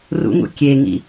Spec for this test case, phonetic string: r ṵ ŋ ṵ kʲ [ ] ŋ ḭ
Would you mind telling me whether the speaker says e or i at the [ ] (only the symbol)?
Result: e